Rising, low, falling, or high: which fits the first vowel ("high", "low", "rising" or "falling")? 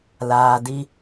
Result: low